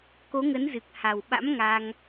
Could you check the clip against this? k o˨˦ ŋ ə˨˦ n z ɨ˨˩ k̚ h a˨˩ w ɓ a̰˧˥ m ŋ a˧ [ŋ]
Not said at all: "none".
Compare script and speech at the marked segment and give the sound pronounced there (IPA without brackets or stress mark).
ŋ